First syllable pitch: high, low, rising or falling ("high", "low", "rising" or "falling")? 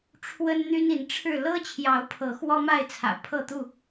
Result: high